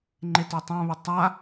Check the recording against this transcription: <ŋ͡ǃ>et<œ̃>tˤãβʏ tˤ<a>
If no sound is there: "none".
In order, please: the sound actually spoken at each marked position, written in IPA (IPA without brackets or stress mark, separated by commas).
ŋ͡ǃ, œ, a